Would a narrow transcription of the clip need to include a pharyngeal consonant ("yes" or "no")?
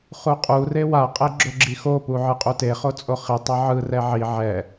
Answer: yes